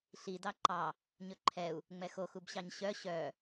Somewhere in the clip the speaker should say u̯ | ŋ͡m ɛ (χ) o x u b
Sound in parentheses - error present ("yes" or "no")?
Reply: yes